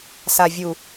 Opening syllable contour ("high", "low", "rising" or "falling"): low